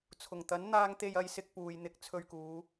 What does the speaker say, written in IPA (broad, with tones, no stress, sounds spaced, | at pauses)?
t͡sʰ ʊ˨˩ ŋ t̪ ɐ˨˥ n n̪ aː˧ ŋ t̪ e˧ j ɐ˨˧ j s ɪ˧ k̚ p uː˨ j n̪ ɪ˧ k̚ t͡sʰ ɵ˧ ɥ k uː˨˧